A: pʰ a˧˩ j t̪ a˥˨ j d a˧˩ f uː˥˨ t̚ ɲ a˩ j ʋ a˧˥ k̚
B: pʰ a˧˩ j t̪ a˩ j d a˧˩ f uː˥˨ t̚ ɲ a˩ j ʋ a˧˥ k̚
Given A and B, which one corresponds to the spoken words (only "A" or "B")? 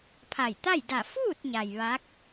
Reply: A